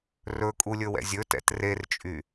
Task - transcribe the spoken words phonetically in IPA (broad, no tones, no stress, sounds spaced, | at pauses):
r ɵ kʼ u lʲ ɵ w ɛ̰ zʲ ɵ t ɛ̰ t r e r t͡ʃʼ y